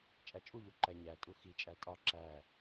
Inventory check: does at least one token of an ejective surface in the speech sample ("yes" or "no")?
yes